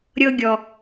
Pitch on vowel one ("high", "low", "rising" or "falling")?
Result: high